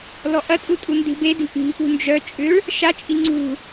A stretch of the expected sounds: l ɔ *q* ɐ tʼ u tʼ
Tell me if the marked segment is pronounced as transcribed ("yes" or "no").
no